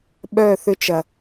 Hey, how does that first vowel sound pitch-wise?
falling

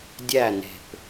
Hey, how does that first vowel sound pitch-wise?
falling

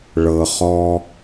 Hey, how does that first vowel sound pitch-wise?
low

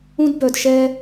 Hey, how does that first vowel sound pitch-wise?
high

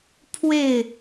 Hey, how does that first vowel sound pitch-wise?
falling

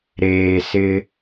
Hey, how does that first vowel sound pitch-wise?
low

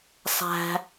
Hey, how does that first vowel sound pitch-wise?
high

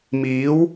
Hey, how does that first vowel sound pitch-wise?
rising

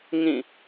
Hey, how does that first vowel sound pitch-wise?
falling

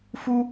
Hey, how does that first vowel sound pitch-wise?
high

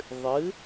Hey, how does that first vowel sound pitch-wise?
rising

